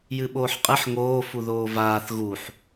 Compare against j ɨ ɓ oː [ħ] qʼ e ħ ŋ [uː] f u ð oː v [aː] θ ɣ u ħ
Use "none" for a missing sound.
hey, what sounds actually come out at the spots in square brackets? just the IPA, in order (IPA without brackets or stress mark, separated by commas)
ħ, oː, aː